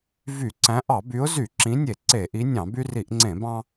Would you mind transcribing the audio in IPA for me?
v y˧˩˧ ǀ æ̃˨˦ ʔ ɑ˧˩˧ b y˨˦ ʊ̯ z y˧˩˧ ǁ ĩ˨˦ nʲ e˧˩˧ ǀ e˧˩˧ ʔ i˨˦ nʲ ɑ̃˧˩˧ b y˦ r i˧˩˧ ʔ ŋ͡ǀ ẽ˧˩˧ b ɑ̃˦

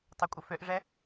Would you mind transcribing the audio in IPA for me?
tˤ ø kʷʼ ə f ø ʔ ʐ ɛ

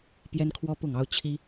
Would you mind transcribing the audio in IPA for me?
p j ɛ˦ n kʰ w ɔ˦ p ʊ˥˨ ŋ ɑ˦ ʊ̯ t͡ɕʰ i˦

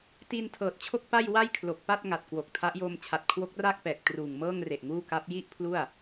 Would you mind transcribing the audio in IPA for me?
t i˧ n tʰ ɤː˨˩ t̚ t͡ɕʰ o˥˩ k̚ p a˥˩ j w a˥˩ j kʰ l o˨˩ k̚ p a˥˩ t̚ ŋ a˨˩ t̚ k w o˨˩ k̚ tʰ a˦˥ ʔ j oː˧ m t͡ɕʰ a˨˩ t̚ kʰ w o˦˥ k̚ r aː˥˩ k̚ p ɛː˨˩ k̚ t r uː˨˩ ŋ m ɤː˥˩ ŋ r e˨˩ ʔ ŋ uː˥˩ k a˦˥ p̚ j i˥˩ ʔ pʰ l u˥˩ a̯

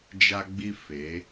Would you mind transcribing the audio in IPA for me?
d͡ʒ a˦ ɡ͡b i˦ f e˨˦

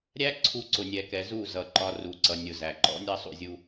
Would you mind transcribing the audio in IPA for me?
ɾʲ æ˦ ǀʰ u˧ ǀ ʊ˨ nʲ ɛ˨ k ɛ˨ z u˦˨ z ʌ˨ ǃ ɒ˧ r u˨ ǀ ʌ˨ nʲ ʊ˨ z æ˨ ǃ ɔ̰˦ nʲ ɑ˦ sˤ ṵ˦˨ zʲ u˧

